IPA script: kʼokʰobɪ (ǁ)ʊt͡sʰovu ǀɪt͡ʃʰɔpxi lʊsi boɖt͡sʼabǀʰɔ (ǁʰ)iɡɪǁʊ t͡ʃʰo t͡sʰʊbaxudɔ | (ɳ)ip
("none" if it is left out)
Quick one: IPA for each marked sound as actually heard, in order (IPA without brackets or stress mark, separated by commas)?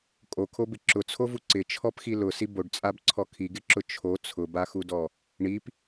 ǁ, kʰ, ɳ